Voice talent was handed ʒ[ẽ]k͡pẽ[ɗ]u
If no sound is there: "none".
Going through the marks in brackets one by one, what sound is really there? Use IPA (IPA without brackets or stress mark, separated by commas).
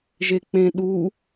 e, ɗ